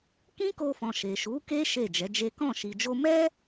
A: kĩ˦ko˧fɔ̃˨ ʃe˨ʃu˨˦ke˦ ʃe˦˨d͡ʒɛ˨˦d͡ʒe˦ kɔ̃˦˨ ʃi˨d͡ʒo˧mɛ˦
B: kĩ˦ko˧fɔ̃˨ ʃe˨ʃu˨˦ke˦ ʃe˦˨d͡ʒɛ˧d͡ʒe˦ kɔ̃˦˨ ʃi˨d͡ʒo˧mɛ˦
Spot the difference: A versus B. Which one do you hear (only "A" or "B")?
A